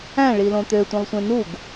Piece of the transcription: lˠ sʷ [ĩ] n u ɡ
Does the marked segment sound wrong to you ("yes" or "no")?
yes